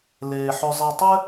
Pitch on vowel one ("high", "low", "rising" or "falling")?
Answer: low